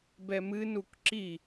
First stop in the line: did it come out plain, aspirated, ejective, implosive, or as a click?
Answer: plain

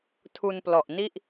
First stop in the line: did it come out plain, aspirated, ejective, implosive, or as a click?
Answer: aspirated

